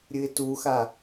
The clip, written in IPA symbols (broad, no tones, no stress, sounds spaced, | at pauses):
ɾʲ ɨ ɪ̯ t u x a